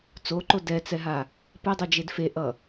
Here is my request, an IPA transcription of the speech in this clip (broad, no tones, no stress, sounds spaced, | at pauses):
t͡s o ǃ o d ɛ t͡s ɛ ɦ a | p ɛ dˤ ɯ d͡ʒ e d f e ʔ ʌ